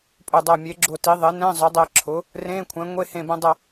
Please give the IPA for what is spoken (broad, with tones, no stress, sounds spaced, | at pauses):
pʼ ɵ˧˩ dˤ ʌː˧˩ mʲ e˩˥ ɡ͡ǁ ʊ˧˩ t i˩˥ ðˤ e˩˥ n ɛ̃˧˥˧ zˤ ʊ˩˥ dˤ ɛ˧ ǁʰ ʊ˩˥ | r ẽː˧˥˧ kʷʰ ɛ̃˩˥ ŋʷ e˧˥˧ h ẽ˧˩ b ɛ̃˧ dˤ ʌ˧˩